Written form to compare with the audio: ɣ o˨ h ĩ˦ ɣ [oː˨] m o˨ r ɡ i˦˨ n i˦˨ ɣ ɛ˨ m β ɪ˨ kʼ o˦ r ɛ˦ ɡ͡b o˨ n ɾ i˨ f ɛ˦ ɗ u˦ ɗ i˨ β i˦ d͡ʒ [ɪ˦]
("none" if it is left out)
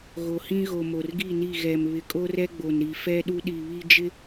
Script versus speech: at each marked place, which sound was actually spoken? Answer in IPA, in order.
o˨, ɪ˦

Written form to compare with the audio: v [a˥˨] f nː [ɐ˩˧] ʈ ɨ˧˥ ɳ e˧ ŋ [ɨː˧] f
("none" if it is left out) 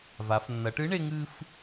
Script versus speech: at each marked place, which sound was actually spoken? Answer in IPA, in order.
a˩˧, ɐ˩˧, ɨː˧

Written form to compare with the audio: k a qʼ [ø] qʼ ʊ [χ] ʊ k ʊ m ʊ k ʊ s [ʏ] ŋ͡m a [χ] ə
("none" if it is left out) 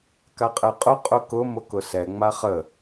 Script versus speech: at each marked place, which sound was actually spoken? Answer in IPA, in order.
ɛ, qʼ, ɛ, χ

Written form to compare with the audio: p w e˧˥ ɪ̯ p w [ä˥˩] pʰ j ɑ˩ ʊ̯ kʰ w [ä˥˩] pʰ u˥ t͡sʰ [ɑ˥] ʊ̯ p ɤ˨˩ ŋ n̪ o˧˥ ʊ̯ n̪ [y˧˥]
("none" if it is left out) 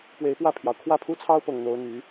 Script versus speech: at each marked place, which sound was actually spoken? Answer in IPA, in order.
ä˥˩, ä˥˩, ɑ˥, y˧˥

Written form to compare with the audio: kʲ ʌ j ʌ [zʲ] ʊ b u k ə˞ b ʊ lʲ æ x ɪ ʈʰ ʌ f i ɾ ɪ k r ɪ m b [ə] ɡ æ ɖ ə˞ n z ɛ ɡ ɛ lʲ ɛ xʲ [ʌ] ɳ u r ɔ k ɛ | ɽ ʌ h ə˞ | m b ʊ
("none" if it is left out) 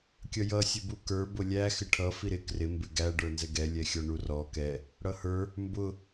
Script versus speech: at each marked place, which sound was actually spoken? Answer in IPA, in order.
sʲ, ɪ, ɔ

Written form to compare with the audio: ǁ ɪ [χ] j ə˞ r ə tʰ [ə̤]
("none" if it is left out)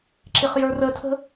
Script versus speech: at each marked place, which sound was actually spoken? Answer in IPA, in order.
χ, ə̤

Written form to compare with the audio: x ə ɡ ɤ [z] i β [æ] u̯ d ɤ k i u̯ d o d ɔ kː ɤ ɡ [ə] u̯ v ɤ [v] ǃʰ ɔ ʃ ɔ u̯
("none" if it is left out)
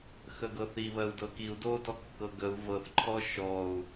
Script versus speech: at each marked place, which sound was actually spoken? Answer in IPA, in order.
θ, ɜ, ə, θ

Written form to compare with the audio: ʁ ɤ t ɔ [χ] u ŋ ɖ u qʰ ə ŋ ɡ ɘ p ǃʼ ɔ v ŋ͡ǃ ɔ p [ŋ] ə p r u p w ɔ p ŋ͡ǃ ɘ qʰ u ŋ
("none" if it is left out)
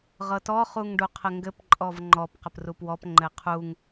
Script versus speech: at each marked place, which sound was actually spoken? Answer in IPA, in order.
χ, q

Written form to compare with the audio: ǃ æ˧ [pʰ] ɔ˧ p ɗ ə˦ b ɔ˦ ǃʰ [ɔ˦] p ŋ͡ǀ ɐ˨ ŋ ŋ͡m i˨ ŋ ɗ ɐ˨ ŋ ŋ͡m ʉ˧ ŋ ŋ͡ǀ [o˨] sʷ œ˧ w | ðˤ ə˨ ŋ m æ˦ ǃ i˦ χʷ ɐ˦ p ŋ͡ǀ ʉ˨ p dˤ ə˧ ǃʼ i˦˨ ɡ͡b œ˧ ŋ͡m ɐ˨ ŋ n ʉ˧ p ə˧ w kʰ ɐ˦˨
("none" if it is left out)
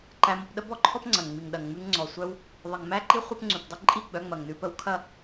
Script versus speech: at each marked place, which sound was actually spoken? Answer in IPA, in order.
m, ɔ˦, ɔ˨

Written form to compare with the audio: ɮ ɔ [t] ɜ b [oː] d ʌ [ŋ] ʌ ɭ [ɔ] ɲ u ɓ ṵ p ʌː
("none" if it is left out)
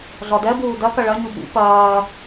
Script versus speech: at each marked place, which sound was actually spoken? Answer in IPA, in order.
d, uː, k, ʌ

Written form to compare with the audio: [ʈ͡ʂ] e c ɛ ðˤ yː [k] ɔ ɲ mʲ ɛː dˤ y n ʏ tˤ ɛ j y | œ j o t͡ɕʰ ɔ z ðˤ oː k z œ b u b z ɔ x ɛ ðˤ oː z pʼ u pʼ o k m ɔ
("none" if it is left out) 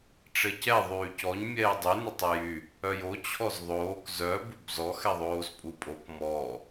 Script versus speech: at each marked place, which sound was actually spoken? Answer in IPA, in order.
ʈ͡ʂ, c

